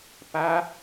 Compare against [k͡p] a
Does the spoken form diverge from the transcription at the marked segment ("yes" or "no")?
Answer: yes